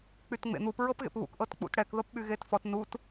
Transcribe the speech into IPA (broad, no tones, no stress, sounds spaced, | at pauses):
k͡p y t ŋ͡m ḛ n̪ u p ɹ ɤ p ɣ ḛ p β ṵ k ʔ ɤ t k͡p ṵ t ɽ ɛ k ð ɤ p ɓ y ɣ e t f ɔ t n u t